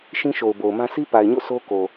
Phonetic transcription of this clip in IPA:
ʃ ĩ˦ ʃ o˨ ʊ̯ b o˨ ʊ̯ m ã˦ sʰ i˦ p a˨ ɪ̯ ɲ o̰˦˨ s o˦ k o˨

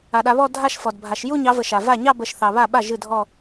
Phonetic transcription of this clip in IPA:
a˨ ɗ a˨˦ β ɔ˥˧ dʱ a˥˧ ʃ f ɔ˨ d bʱ a˨˦ ʃ j u˥˧ ɲ ɑ˨˦ v ə˨ ʃ a˨ v a˥˩ ɲ ɑ˥˧ b ə˨˦ ʃ θ ɑ˨ β a˥˩ ɓ a˥˩ ʒ ɨ˥˩ dʱ ɔ˥˧

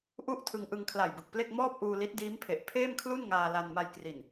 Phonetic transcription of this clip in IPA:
ʔ u˥˩ ʔ tʰ ɯ˧ ŋ ʔ ɯ˧ ŋ kʰ l a˨˩ j b ɯ˨˩ k̚ p l e˥˩ k̚ m ɔː˥˩ p̚ ʔ uː˧ l i˦˥ t̚ d iː˦˥ m pʰ e˨˩ ʔ pʰ eː˥˩ m kʰ l u˥˩ n ŋ aː˧ l a˧ n m a˧ j k r i˨˩ n

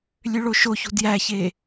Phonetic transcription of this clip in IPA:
lʲ ø ɭ o ʃ o ç ṳ d j æ ç e

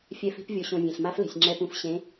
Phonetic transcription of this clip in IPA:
fʲ ɛ˨˦ f i̤˨˦ p vʲ o˨ ɕ õ˨ vʲ ẽ˨ ɬ m a˦˥ f l e̤˨ sʲ ŋ͡ǁ ɛ˨ p ũ˨ f ɕ ẽ˨˦

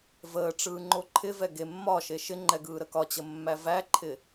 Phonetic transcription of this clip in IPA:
v əː ʈ͡ʂ ɯː ŋ͡ǃ o ǃʰ ɪ v ɛ ɡ e mː ɒ ʃ e ʃ ɪ ŋ͡ǃ ɛ ɡ ɯː ɾ ə k ɒ t͡ɕ ə mː æ v æ ǃʰ ɪ

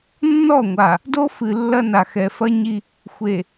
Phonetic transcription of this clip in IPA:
nː ɔ˦˨ ŋʷ a˨ | d o˦ f ɨ˨ lː ɐ˦ n a˨ x ɛ˨ f ɐ˦ ɲ i˦ | xʷ e˨

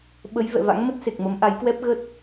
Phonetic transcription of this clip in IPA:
ɓ ə˨˦ j v ɛ̰˧˨ v a̰˧˥ ŋ m ə˦˥ t̚ s e˨˩ k̚ m ə˨˦ m ʔ a˨˦ j k w ɛ˦˥ p̚ ɣ ə˦˥ t̚

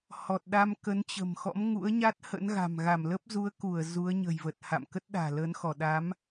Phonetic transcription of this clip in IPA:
h ɔ˨˩ t̚ ɗ a˧ m k ə˨˦ n t͡ɕ ə̤˨˩ m x ɔ̰˧˥ m ŋ ṵ˧˥ ə̯ ɲ a˦˥ t̚ h ə̰˧˥ n ɣ a̤˨˩ m ɣ a˧˩ m l ə˦˥ p̚ z u˨˦ ə̯ k u˧˩ ə̯ z u˨˦ ə̯ ɲ ə̤˨˩ j v ə˨˩ t̚ h a̰˧˨ m k ə˦˥ t̚ ɗ a̤ː˨˩ l əː˨˦ n x ɔ˧˩ ɗ a˨˦ m

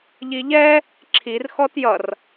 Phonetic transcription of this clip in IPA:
ʎ i ʎ ɛ | ǁʰ i r x ɔ t j ʌ r

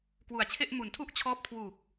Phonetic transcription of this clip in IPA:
k w u˨˩ a̯ t͡ɕʰ e˥˩ ʔ m u˩˦ n tʰ u˥˩ ʔ t͡ɕʰ ɔː˦˥ p̚ kʰ w uː˨˩ k̚

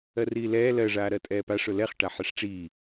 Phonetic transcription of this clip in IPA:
ɜ r iː l ɛː l ɜ ʐ aː ɾ ɜ tʼ ɛː p a ʂ ʊ l ɛ χ ʈ a ħ ɛ ʂ ʈ͡ʂ iː

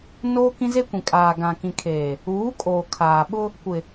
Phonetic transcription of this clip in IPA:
n oː˦ k ĩ˦ z e˦ kʷ ĩ˨ kʼ aː˨ ɡ ã˨ k ĩ˨ kʰ eː˨ | uː˨˦ kʼ oː˨ kʰ aː˨ ɓ ʊ˦ | kʷ ɪ˨

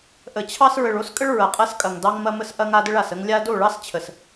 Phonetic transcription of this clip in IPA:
ʔ ə˨ t͡ɕʰ ɑ˦ s ɹ ə˨ ɭ o˦ s kʼ ə˦ ɭ ɹ ɐ˨ qʼ ɐ˦ s kʼ ɐ˨ ŋ d ɑ˦ ŋ m ɐ˦ m ə˦ s ʔ ɐ˦ ŋ a˦ d ɘ˦ ɭ a˨ s ə˦ ŋ lʲ a˦ d o˦˨ ɭ ɑ˦ s t͡ɕʰ ə˨ s

